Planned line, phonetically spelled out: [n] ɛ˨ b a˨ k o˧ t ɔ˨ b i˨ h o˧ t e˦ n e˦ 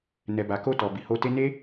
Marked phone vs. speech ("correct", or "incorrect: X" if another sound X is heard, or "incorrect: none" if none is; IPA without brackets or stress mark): correct